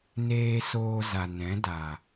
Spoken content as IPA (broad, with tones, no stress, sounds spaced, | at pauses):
n eː˧ s oː˧ z a˨ n ɛ̃˨˦ d a˨